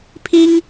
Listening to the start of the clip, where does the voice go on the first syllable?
high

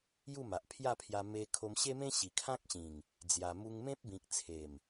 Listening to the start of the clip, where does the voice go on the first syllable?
falling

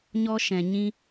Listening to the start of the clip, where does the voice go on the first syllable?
high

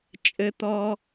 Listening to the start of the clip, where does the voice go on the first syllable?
low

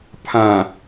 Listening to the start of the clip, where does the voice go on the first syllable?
low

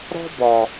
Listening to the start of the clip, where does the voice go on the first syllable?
high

